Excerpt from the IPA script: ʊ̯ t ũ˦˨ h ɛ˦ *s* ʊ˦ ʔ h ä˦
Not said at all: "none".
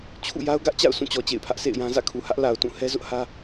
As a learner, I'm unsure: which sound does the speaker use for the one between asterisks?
z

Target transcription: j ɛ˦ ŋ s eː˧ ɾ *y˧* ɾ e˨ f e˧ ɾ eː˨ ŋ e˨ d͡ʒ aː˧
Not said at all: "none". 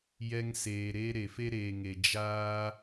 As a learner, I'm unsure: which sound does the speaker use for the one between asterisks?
e˧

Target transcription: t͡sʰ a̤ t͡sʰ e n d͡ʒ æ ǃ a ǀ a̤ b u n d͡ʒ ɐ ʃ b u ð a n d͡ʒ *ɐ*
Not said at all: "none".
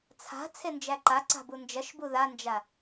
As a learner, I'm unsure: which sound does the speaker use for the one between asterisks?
a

